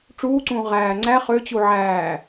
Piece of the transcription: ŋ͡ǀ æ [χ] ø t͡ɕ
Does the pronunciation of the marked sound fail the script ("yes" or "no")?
no